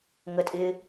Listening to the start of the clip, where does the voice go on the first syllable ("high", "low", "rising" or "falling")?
low